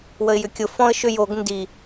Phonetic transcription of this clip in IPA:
wəɪ̯jʏkʲʊ fɔ̃ə̯ʃʏ joɡ ndi

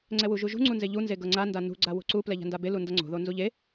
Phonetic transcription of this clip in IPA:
ŋ͡ǀɛwuʒuʒṳ ŋ͡ǀunzeʎu nzeɡɤŋ͡ǀa ndanṳ ɡ͡ǀawo̤ǀu plɛʎa̤ndabe lundʌŋ͡ǀo̤ ðonzuʎe

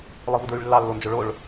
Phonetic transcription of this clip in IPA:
lˠɯvudɹyɭlːɑ lːond͡ʒoɭoɭ

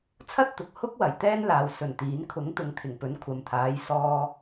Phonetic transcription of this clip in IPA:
t͡sʰɐ˥t̚t̪ʊ˨k̚ hʊ˥k̚wɐ˨˩j t̪ɛː˥nlaː˨w sɵ˨˩nt̪iː˨˥n kʰʊ˨˥ŋ t̪ʊ˨˧ŋt̪ʰɪ˨˩ŋpɵ˨˥n kʷʰɐ˨mt̪ʰaː˨˧j sɔː˧

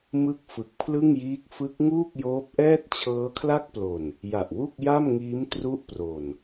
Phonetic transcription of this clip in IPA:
mɯ˥˩k̚ fɯ˨˩k̚pʰlɯ˥˩ŋjiː˦˥k̚ fɯ˦˥k̚ ŋuː˥˩k̚joː˦˥p̚ʔɛː˥˩t̚ t͡ɕʰɤː˦˥kʰla˥˩k̚plo˨˩n | ja˨˩ʔwu˥˩k̚ja˥˩mŋiː˦˥m tru˥˩ʔpro˨˩n

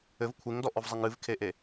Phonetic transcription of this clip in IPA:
ɘv kʷʰeŋdɔʔɔvzˤɛŋ ɨvkʰeʔe

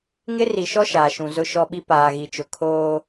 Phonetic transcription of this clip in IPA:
ŋɪ˦ri˨ʃɔ˦ ʃaː˨ʃũ˨ zʊ˦ʃɔ˦ɓi˦ paː˨ɣi˨t͡ʃʊ˨ kʰoː˦

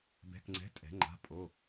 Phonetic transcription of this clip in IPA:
bɛ̤˧˥˧kŋ͡ǀɛ̤˧˥˧ tʼɛ̤˨˦ ŋ͡ǃa̤˧˥˧pʼo˧˥˧

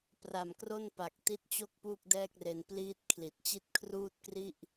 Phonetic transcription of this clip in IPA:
pra˨˩mkro˥˩npa˨˩k̚ ti˦˥t̚t͡ɕo˥˩k̚ puː˥˩k̚dɛː˥˩k̚re˧n pliː˥˩t̚ kʰli˨˩t̚t͡ɕi˥˩t̚ kʰruː˥˩t̚kri˥˩ʔ

